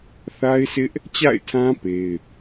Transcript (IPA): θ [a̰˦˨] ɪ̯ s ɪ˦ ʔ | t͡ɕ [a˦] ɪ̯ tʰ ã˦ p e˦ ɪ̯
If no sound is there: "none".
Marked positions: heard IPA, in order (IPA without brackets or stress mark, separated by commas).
a˦, a̰˦˨